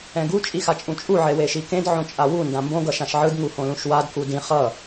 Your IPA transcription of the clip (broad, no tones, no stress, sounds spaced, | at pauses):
ɛ̃ ɡ u t͡ʃʼ i x a t͡ʃʼ ũ t͡ʃʼ u ʕ e w e ʃ i k ẽ d ʕ õ t͡ʃʼ a w u n d ã m b õ ɡ ʌ ʃ ã ʃ ʕ ɯ d ŋ u h õ l ũ ʃ w a d k u d ĩ χ ʌ